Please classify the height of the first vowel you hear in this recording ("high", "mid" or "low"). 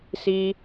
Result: high